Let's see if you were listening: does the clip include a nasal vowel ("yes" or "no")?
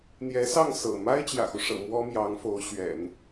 no